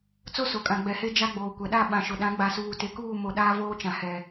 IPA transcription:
t͡s o˦ s o˨ kʼ ã˨ ɡ͡b ɛ˨ h e˦ d͡ʒ a˦ ɡ͡b oː˨ kʷ ɛ˨ ɗ a˦˨ ɓ ã˨ ʃ ʊ˨ ɗ ã˨˦ ɡ͡b a˨ s uː˨ t e˨ k uː˦˨ m o˨ ɗ aː˦ v oː˦ t͡ʃ ã˨ h ɛ˨

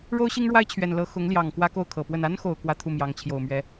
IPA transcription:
ɻ o˥ ʊ̯ ɕ i˥ ŋ ɻ w a˥ ɪ̯ t͡ɕʰ ɥ ɛ˨˩ n l ɤ˧˥ x ʊ˧˥ ŋ l j ɑ˨˩ ŋ k w ä˥ k o˥˩ ʊ̯ kʰ ɤ˨˩ p w ə˥˩ n a˥ n x o˨˩ ʊ̯ k w ä˥ t̪ʰ u˥˩ m j ɑ˧˥ ŋ t͡ɕʰ j o˨˩ ʊ̯ m ɥ ɛ˧˥

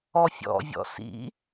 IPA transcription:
ɔ fʲ ɔ̰ vʲ ɔ̰ s ḭ

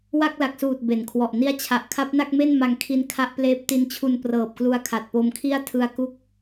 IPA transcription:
w a˥˩ k̚ l a˨˩ k̚ s uː˨˩ t̚ b e˩˦ n kʰ w ɔ˨˩ ʔ n i˦˥ a̯ t͡ɕʰ a˨˩ ʔ kʰ a˦˥ p̚ n a˥˩ k̚ m e˥˩ n m a˧ ŋ kʰ i˧ n kʰ a˦˥ ʔ p l eː˦˥ p̚ t i˧ n t͡ɕʰ u˧ n p r ɤː˨˩ p̚ k l u˧ a̯ kʰ a˨˩ t̚ p o˧ m kʰ i˥˩ a̯ tʰ ɯ˧ a̯ k u˦˥ k̚

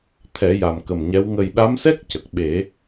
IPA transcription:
t̪ʰ ɛ˨˩˦ j a˨˩ m k ə˨˩ m ɲ ɛ˧˥ w ŋ ə˨˩ j ɗ a˧˥ m s ɛ˦˥ k̚ c ə˨˩ k̚ ɓ e˨˩˦

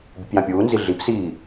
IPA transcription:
bʲ ɨ p j ã pʲ uː n z i ɮ i p s iː

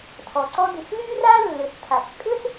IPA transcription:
tʰ ɔ˩ ǀ ɔ˥ d y˩ s l y˥ r a˥ lː ʏ˩ s tʰ a˩ s kʼ ʏ˥ s

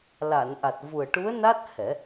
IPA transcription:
l a˨˩˨ n ʔ a˨˩ t̚ v u˨˩ ə̯ ʈ u˧˥ ə̯ n a˦˥ t̚ h ɛ˨˩˦

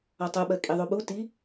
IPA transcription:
ɔ tˤ u ɓ ɜ kʼ i ðˤ u ɓ u t i

